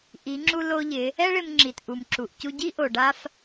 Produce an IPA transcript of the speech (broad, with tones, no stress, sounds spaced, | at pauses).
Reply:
ʔ i˩˧ ŋ͡ǁ u˧ l o˧ ʎ ɪ˩˧ | ɛ˥ ɭ ɪ˧ m ŋ͡ǁ i˩ t ʔ u˩ m ǁ u˩ ʔ c u˧ ɟ i˥ ʔ o˩ ɖ a˥ f